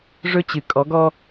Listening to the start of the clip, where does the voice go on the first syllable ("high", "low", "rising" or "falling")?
high